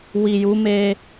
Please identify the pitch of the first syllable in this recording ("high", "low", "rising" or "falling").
low